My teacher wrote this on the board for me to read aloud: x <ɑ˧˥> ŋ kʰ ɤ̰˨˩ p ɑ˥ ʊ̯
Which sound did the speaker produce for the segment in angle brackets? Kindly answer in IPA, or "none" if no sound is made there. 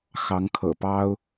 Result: ɑ˧˥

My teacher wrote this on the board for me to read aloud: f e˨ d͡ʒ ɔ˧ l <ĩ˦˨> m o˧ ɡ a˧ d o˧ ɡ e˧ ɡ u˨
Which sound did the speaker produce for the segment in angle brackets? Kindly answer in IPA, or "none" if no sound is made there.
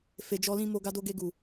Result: ĩ˧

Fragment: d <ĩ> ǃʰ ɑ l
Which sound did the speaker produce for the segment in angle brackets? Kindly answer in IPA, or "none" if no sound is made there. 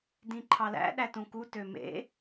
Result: ĩ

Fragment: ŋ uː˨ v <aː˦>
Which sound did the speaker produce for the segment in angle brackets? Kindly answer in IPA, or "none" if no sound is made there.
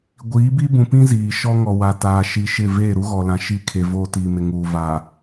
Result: aː˨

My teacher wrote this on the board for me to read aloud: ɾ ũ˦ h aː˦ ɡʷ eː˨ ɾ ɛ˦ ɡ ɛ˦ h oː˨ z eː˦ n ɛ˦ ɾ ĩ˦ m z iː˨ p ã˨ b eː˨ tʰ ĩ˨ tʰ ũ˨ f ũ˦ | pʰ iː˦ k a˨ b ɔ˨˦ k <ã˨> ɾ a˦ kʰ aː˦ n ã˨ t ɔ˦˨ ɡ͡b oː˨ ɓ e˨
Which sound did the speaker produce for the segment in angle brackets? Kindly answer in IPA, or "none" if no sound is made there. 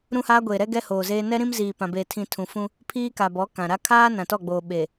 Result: ã˨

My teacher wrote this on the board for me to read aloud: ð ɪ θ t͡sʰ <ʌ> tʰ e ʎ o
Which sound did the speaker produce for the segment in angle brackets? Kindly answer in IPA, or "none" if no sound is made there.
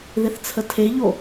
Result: ə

